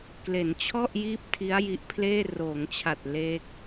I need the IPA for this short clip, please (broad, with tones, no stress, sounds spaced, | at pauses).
k l e˩˦ n t͡ɕʰ ɔ˥˩ ʔ j iː˥˩ p̚ tʰ i˦˥ a̯ j i˦˥ ʔ pʰ l eː˥˩ r oː˩˦ ŋ t͡ɕʰ a˨˩ t̚ l eː˦˥ k̚